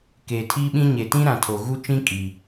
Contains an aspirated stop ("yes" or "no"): yes